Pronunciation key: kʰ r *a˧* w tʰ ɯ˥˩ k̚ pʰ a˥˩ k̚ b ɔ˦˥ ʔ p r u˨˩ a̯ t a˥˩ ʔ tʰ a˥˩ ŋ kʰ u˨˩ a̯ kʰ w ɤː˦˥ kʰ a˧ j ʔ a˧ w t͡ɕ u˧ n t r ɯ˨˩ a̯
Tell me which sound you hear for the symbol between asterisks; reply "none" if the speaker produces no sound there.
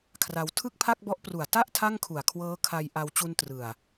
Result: a˧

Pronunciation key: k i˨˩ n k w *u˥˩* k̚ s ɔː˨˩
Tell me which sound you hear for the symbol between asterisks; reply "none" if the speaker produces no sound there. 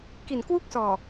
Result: u˥˩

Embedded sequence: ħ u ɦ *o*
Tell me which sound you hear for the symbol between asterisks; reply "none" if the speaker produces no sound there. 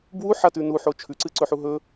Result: ɵ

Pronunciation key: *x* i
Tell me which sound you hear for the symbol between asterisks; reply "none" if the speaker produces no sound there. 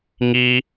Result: ŋ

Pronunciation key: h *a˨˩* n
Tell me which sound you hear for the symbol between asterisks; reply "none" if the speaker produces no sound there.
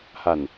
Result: a˨˩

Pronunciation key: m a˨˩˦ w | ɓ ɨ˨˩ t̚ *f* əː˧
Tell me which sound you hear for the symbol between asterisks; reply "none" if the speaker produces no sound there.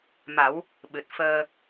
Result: f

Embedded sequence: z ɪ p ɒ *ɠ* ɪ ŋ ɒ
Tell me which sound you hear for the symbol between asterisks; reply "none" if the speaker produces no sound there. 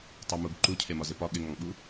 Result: ɠ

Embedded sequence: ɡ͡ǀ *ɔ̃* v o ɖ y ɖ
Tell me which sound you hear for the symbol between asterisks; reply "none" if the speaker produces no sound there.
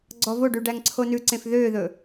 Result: ɔ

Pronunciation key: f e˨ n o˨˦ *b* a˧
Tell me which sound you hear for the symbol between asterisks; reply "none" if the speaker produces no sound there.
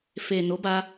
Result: b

